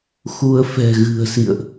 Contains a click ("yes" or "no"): no